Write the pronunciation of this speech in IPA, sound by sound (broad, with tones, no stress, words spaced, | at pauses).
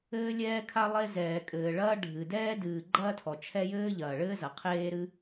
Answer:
ɘː˥ lʲɛː˥kʰa˥ lˠe˥zɛː˩kʼɘː˩ ɭɐː˥ ɖʱɨ˩dɛː˥ dɨː˩ ɡ͡ǃɐː˥tʰɔ˩ t͡ʃʰɛ˥ jɘː˥ʎɐː˩ɭɘː˥zɐ˩ qʰeː˥ɾɨ˥